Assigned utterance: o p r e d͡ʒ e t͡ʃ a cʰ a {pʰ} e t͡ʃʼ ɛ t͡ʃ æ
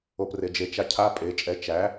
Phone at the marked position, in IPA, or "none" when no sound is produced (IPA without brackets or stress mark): pʼ